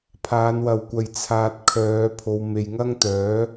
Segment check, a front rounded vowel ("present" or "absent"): present